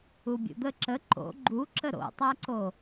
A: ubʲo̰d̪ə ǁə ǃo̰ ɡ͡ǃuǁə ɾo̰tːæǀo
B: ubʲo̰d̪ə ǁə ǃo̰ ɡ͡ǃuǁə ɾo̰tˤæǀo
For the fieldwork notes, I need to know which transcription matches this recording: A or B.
B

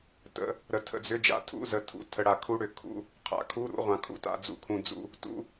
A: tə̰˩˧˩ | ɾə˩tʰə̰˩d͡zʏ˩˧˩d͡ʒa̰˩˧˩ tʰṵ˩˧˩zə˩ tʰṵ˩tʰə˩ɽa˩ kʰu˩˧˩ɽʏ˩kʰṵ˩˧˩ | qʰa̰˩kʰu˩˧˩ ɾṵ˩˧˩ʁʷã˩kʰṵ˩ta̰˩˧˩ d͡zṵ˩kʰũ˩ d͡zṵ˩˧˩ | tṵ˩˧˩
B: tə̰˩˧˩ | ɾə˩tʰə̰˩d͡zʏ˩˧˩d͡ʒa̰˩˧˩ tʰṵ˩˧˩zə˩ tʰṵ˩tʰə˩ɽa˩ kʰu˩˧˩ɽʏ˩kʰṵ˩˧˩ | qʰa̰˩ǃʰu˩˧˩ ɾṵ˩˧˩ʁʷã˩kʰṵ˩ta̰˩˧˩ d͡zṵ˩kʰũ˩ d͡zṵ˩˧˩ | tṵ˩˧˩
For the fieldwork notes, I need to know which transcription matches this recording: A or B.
A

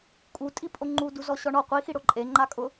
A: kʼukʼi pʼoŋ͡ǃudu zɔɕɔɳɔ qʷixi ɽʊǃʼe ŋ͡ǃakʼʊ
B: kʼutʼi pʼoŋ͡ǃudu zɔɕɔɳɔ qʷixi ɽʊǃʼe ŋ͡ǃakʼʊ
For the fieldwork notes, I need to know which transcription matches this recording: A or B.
B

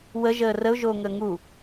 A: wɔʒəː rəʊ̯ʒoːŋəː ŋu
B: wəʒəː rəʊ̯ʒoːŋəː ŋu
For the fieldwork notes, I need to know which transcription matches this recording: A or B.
B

